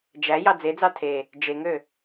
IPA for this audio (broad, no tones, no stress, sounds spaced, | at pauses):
d͡ʒ æ j ɑ d͡z e d͡z ɑ tʰ e | d͡ʒ e ŋ ø